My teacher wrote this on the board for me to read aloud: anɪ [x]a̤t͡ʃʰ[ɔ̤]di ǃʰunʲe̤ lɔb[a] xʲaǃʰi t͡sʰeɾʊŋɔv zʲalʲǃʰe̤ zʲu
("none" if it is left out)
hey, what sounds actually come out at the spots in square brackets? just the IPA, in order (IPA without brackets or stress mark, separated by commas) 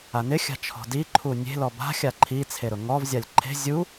xʲ, ɔ̤, a̤